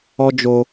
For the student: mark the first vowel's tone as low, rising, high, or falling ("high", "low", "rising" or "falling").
high